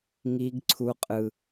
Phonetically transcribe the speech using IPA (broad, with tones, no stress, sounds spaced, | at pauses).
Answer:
ŋ i˦ ɡ ǀʰ u˦ qʼ ɯ˦